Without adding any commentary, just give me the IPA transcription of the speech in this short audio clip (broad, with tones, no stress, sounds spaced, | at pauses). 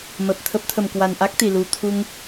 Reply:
m ə˨˩ p̚ t̪ʰ ə˦˥ p̚ t̪ʰ ə˨˩ m k w a˨˩ n ʔ a˦˥ k̚ t̪ i˨˩ l u˨˩ t̪ʰ u˧ ŋ